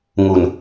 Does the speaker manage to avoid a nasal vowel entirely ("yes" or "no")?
yes